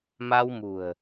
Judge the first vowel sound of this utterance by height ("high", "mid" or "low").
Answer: low